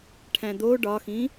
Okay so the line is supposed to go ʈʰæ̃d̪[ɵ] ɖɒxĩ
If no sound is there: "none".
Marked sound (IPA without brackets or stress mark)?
o